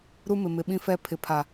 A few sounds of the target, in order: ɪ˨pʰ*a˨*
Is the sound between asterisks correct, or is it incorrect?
correct